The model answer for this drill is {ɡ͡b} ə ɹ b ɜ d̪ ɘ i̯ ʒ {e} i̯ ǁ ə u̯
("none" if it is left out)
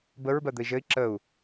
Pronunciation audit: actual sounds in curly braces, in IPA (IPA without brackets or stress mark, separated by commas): b, ɘ